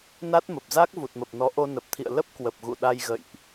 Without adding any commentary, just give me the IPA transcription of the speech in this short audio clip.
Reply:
n a˦˥ t̚ m ə˨˩ p̚ z a˦˥ k̚ v u˨˩ t̚ m ə˨˩ p̚ n ɔ˨˦ ʔ o˧ n ə˨˩ p̚ t̪ʰ ḭ˧˨ ə̯ l ə˦˥ p̚ k w ə˨˩ p̚ ɣ ṵ˧˨ ɗ a˧ j ɣ ə̰˧˨ j ʔ

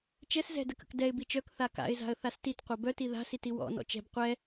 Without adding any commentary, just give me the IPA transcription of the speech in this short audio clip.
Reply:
t͡ʃ ɛ s z ɛ̤ d ə k ə̰ k d ɛ ɪ̯ b i t͡ʃ œ k θ a k a̰ ɪ̯ z a̤ ə̯ θ a s t i t qʷ ʌ b œ t i ð a̤ s i t i w ɔ̰ n ɔ̰ t͡ʃ ɛ̤ b qʷ ɛ

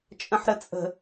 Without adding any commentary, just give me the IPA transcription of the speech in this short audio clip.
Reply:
t͡ʃʼ ə̃ ħ ɾ ə t͡sʼ ə̤

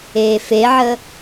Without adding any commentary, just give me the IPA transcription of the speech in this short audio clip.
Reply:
eː f e ʕ ə

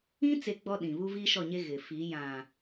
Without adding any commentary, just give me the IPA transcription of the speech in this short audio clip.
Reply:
ĩ˦ t͡s e˦ ɡ͡b ɔ˦ ɗ ĩ˨ β u˦ v iː˦ ʃ ɔ˦˨ ɲ e˦ ɣ ɪ˨ f i˨˦ j ã˨

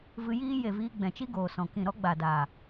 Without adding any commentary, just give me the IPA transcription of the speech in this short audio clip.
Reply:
v ɨ˧ j iː˦ j e˨ v iː˧ ɡ͡b ɛ̃˨ t͡ʃ i˦ ɡ oː˨ s ɔ̃˨ k ĩ˦˨ ɾ ɔ˦ ɡ͡b a˨ d aː˨

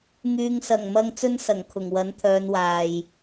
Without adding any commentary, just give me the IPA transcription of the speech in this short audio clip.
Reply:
ŋ yː˨ ŋ s ɐ˨˩ ŋ m ɐ˧ ŋ t͡s ɵ˥ n s ɐ˨˩ ŋ kʰ ʊ˨˩ ŋ w ɐ˨˥ n t̪ʰ œː˨˧ n w aː˨ j

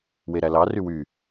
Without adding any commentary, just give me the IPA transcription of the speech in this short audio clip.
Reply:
w e ɾ æ l ɑ r y w y

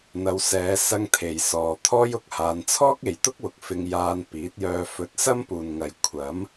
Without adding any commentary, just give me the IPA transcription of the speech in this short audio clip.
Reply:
n̪ ɐ˨˧ w s ɛː˨˧ s ɐ˧ ŋ t̪ʰ e˨ j s ɔː˨ t̪ʰ ɔː˥ j ʊ˧ k̚ h aː˧ n t͡sʰ ɔː˥ k̚ e˨ j t̪ ʊ˥ k̚ w ʊ˨ k̚ f ɪ˧ ŋ j aː˧ n p iː˨˥ t̚ j œː˧ f ɵ˧ t̚ s ɐ˥ m p uː˨ n ŋ ɐ˨ j kʷʰ ɐ˨˥ m

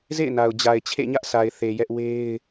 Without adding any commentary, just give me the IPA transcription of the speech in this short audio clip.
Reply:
z ḛ˦˨ ɪ̯ n a˨ ʊ̯ d͡ʑ a˨ ɪ̯ t͡ɕʰ ḛ˦˨ ɲ ä˦ ʔ sʰ a˨ ɪ̯ θ e˨ j ɛ˦ ʔ w e˦ ɪ̯

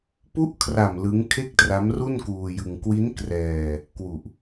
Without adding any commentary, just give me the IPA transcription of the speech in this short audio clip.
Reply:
p u˦˥ ʔ kʰ r a˨˩ m l ɯ˦˥ ŋ kʰ e˥˩ k̚ t r a˦˥ m r u˥˩ n k uː˧ j ɯ˧ ŋ k w i˦˥ n k r ɛː˧ | k w u˨˩ ʔ

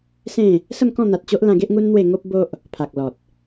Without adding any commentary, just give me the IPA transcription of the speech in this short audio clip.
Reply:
s ẽ˥˧ | s ə˥˧ m k ɔ̃˥˧ n̪ a˨ t̚ t͡ɕ o˦ ʔ l ã˧ ɡ e˦ ʔ ŋ u˦ n n̪ w e˥˧ ŋ o˦ p̚ b o˦ ʔ | pʰ a˨ k̚ l ɔ˨ t̚

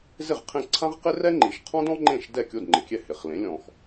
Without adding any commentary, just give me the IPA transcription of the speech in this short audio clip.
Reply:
z ɪ˥˩ ʁ qʰ ẽ˥˩ ǀʰ ã˥ ʁ q ɪ˥ r ɛ˥ ŋ͡ǃ i˩ ʃ qʰ ɔ̃˥ d ɔ̃˥ ŋ͡ǃ ẽ˥˩ ʃ d ɛ˥˩ kʲ o˥˩ d ŋ͡ǃ ɪ˩ kʲ ɛ˥˩ h ɪ˩ χ l ẽ˩˥ lʲ ɔ̃˩ x

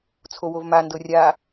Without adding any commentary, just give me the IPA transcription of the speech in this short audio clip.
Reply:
t͡sʰ o w o v m a n d ɤ rʲ a

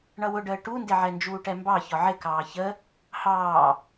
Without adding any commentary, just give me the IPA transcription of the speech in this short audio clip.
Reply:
ɳ ʌ w ʊ ɖ əː ʈ u n d ɪ ʕ ɛ n d͡ʒ uː ʈ ɛ m b ɑ ç ɒ ʕ ɪ k ɑː ç ə | h ɑː

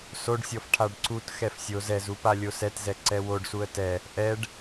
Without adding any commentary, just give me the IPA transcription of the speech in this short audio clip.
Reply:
s o ɖ sʲ ɔ f ʈʰ a ɖ ǀ u t x ɛ f sʲ o z ɛ z u p a lʲ o s ɛ t z ɛ ǀ ɛ w o ɖ s u ə̯ t ɛ | ʔ ɛ ɖ

